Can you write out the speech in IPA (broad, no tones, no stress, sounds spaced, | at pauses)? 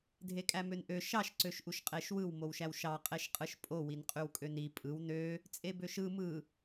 dʱ e kʼ æ m ø n ʔ ø ʃ ɑ ʃ ǀ ø ʃ ʔ u ʃ qʼ e ʃ w ɯ w m o w ʃ æ w ʃ ɑ qʼ e ʃ qʼ ɯ ʃ pʼ o w i n qʼ y w kʼ ø n i pʼ ɯ w n ø | t͡sʼ e b ø ʃ ɯ m ɯ